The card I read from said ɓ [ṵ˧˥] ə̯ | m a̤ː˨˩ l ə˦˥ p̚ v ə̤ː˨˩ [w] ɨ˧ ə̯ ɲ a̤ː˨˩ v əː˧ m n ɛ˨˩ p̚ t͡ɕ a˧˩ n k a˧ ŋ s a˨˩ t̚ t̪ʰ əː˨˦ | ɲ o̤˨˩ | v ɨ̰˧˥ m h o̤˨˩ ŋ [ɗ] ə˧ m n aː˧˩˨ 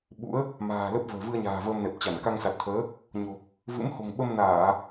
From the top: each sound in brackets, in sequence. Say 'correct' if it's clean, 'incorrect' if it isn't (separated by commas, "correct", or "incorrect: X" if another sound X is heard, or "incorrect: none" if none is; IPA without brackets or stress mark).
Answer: correct, incorrect: v, incorrect: ɓ